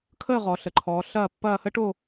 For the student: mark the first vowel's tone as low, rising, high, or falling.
falling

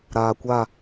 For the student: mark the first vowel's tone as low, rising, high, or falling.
low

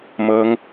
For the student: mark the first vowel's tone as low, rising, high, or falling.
high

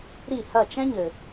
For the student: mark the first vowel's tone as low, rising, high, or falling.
falling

